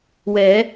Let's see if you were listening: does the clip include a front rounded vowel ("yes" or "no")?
no